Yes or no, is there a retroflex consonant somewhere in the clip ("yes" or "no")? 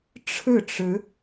yes